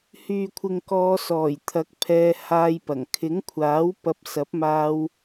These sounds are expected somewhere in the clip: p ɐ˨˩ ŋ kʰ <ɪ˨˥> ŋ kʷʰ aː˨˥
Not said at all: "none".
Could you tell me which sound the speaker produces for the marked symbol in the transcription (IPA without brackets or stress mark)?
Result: ɪ˨˥